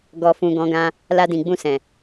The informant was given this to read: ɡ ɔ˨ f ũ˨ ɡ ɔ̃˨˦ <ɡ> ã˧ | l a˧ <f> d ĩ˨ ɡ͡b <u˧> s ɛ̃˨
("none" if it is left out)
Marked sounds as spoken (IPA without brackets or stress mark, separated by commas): ɡ, none, ũ˧